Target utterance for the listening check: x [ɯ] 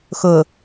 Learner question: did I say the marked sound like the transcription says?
no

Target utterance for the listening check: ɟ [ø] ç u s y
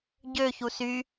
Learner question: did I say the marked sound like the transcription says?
yes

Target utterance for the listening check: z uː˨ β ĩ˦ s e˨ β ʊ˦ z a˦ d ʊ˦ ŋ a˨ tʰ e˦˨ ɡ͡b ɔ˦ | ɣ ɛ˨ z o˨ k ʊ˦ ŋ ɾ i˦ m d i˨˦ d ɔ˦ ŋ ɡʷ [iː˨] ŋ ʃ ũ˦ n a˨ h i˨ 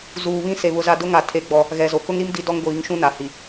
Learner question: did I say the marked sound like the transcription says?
no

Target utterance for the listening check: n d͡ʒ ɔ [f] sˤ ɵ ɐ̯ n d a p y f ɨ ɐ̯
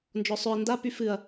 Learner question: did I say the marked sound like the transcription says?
no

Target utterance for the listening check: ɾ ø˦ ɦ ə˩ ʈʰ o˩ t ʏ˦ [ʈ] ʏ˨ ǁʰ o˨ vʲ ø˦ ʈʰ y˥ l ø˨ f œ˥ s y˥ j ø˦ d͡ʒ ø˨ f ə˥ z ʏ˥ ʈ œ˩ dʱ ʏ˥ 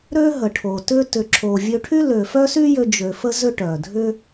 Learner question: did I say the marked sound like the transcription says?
no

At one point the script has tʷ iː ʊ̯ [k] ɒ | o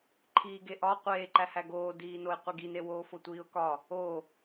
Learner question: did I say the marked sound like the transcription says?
yes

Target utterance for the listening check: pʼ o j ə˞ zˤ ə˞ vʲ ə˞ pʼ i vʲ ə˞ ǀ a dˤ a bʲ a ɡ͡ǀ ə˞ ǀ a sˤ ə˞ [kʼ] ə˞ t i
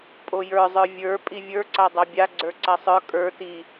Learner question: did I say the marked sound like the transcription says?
yes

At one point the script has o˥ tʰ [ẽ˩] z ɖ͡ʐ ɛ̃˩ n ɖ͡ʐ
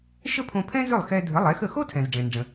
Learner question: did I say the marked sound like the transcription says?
no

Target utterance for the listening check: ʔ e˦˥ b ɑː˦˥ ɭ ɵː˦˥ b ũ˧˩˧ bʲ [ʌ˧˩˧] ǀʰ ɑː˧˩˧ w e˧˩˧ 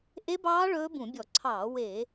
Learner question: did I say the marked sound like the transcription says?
no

